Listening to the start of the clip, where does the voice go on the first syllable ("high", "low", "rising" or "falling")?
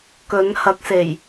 rising